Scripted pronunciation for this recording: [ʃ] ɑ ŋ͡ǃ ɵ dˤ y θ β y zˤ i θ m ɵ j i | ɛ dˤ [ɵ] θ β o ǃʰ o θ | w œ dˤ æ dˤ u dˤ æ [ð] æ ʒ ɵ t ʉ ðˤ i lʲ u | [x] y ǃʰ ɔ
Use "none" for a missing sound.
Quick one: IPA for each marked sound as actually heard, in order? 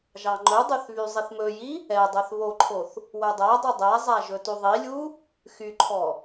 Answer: ʒ, œ, zˤ, x

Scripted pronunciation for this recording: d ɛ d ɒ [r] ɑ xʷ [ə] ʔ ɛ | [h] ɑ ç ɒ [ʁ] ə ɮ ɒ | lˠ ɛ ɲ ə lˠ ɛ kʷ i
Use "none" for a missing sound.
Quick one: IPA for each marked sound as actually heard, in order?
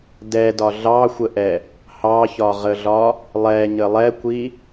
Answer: ɮ, ə, h, ʁ

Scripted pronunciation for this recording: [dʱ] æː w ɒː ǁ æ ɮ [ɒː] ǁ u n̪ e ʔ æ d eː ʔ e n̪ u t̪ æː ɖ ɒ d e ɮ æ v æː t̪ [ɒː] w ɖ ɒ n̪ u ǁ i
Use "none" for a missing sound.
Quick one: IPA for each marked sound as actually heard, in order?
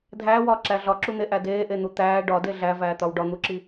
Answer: dʱ, ɒ, ɒ

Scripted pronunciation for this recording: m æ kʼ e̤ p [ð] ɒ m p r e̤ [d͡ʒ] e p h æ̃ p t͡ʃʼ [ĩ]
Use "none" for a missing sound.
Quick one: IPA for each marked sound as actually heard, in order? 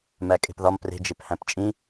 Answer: ð, d͡ʒ, ĩ

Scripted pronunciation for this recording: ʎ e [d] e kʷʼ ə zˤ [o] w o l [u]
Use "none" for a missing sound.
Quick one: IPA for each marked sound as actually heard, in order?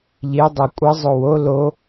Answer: dˤ, o, o

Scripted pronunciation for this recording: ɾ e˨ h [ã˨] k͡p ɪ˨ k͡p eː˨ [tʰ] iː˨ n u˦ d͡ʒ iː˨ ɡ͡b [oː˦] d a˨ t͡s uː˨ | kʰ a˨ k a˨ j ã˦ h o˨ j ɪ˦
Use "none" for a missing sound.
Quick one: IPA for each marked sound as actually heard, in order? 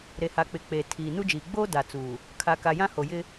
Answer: a˨, tʰ, oː˦

